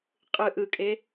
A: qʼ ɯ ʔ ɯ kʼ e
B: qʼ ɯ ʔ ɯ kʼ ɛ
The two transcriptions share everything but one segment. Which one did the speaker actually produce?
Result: A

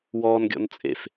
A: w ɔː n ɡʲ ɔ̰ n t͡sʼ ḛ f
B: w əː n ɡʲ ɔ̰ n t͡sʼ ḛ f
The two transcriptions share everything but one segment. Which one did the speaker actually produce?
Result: A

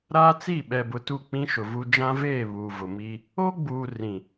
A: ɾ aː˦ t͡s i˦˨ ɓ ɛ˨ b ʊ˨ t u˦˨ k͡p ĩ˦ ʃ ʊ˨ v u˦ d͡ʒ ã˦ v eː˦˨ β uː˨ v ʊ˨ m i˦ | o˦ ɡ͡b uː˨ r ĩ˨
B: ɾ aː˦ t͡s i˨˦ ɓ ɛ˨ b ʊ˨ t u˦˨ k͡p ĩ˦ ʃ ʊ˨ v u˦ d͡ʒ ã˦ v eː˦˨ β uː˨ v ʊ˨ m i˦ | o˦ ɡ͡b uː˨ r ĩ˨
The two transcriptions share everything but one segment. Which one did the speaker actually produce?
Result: A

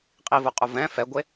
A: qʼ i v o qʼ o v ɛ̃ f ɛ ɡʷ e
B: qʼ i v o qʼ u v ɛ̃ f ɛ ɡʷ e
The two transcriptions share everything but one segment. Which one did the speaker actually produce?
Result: B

